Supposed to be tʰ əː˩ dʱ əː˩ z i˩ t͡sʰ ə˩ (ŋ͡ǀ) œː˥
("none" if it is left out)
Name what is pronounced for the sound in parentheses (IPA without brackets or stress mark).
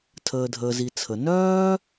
n